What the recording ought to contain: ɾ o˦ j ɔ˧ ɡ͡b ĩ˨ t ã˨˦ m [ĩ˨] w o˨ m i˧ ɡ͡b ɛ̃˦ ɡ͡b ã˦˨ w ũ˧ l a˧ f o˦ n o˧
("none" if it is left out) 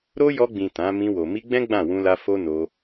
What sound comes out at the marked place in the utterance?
ĩ˧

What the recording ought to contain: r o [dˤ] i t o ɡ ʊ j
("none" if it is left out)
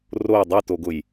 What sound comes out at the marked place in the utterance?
dˤ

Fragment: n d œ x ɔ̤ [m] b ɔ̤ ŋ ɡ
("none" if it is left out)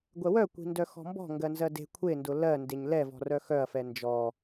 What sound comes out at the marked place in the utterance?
m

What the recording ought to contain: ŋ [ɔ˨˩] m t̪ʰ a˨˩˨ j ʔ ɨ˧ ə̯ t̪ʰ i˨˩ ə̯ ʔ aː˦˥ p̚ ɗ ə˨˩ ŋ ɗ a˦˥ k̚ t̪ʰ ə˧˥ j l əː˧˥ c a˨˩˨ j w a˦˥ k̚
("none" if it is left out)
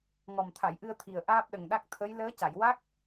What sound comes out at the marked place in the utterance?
ɔ˨˩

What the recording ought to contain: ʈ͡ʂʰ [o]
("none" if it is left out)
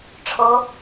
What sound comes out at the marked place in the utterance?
o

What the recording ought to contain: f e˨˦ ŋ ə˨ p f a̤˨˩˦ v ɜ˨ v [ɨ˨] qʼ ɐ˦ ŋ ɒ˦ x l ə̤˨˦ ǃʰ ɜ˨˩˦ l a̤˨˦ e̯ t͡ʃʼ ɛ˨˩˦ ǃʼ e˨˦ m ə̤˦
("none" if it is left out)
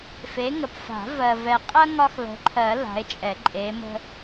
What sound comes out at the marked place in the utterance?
ɛ˨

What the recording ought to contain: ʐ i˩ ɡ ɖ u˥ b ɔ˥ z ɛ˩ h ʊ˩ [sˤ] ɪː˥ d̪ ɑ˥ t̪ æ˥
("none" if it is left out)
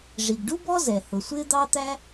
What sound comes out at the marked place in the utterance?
sʷ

